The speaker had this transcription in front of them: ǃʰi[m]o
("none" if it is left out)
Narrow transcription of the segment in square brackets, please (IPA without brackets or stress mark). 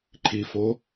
f